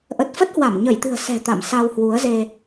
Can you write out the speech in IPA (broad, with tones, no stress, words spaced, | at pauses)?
ʔə˨˩t̚fə˦˥t̚hwa˧˩m ɲə˧˩jt̪ɨ̤˨˩ə̯ sɛ̤˨˩ t̪a̰˧˨msa˧w hwu˨˦ə̯ze˧